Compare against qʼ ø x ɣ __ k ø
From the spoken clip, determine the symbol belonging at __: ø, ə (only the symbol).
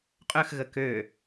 ə